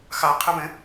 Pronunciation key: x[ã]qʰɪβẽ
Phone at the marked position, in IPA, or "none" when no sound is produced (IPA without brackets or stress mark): a